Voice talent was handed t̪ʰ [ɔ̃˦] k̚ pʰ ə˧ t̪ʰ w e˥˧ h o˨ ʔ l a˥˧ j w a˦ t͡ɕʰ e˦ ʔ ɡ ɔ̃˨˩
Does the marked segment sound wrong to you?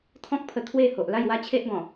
no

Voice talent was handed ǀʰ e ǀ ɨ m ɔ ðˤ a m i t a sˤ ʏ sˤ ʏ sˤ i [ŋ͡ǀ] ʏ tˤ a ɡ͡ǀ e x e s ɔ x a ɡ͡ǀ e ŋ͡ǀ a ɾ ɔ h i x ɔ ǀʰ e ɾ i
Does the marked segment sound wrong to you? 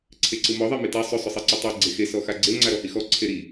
yes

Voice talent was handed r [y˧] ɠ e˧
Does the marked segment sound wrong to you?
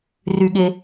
no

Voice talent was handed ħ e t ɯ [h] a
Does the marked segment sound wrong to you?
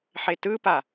yes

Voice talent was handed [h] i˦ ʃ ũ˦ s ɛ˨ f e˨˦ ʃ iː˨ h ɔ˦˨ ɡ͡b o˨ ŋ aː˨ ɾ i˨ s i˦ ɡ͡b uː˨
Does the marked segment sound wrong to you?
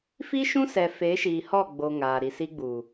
yes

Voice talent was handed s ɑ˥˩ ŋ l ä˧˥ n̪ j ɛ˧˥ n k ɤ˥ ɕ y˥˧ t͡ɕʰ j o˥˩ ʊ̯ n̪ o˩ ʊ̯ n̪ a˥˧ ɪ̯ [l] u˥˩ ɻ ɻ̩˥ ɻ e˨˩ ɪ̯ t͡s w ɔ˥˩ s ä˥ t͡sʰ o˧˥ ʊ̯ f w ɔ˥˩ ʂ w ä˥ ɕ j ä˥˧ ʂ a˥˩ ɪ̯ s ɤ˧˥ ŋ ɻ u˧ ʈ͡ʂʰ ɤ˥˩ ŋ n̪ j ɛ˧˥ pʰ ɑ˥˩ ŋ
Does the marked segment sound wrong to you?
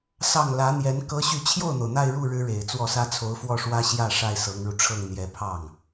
yes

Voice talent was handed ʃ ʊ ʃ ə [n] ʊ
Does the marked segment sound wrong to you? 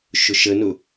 no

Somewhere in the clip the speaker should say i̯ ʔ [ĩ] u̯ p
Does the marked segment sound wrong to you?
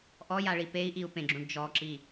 yes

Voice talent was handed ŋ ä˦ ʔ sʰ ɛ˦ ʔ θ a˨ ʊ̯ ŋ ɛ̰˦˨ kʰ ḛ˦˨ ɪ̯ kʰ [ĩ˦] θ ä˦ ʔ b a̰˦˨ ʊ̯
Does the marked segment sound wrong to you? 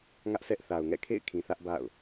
yes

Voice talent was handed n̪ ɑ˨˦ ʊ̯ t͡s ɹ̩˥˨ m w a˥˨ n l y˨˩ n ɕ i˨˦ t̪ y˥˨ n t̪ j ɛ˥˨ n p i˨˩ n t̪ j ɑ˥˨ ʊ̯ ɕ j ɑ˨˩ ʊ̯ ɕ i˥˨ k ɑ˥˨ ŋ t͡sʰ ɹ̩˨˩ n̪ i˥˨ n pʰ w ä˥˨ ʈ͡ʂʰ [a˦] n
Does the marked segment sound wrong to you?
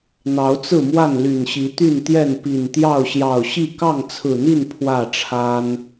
no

